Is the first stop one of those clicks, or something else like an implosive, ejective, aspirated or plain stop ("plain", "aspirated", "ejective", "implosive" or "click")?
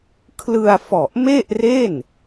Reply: aspirated